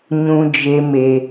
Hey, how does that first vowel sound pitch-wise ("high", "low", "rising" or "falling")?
low